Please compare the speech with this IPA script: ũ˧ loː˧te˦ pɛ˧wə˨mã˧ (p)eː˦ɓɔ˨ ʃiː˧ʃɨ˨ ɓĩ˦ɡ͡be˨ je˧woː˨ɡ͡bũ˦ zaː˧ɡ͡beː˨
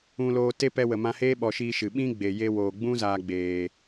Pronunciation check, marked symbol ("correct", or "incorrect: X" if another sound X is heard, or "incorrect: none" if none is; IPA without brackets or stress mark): incorrect: h